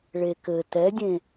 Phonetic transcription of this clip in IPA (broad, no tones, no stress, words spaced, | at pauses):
ɭekɘ tɛdʲẽ